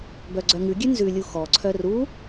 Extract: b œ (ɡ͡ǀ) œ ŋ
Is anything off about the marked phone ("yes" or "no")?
no